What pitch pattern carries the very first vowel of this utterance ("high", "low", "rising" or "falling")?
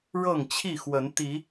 falling